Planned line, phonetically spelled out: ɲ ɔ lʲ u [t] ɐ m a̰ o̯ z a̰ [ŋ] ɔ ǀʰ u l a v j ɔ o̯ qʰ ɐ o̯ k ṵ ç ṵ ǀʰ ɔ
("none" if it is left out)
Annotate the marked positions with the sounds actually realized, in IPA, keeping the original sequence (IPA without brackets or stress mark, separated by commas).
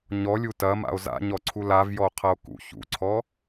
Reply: t, ɲ